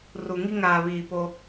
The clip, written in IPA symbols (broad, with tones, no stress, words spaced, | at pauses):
ru˨ŋi˦ ŋaː˨βiː˨ poː˦